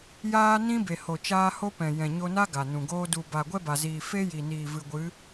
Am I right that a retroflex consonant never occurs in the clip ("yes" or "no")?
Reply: yes